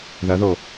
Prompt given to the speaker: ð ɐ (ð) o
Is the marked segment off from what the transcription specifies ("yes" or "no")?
no